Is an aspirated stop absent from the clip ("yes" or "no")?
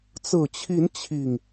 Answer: no